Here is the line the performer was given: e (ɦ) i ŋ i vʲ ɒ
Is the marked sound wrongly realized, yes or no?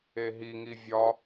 no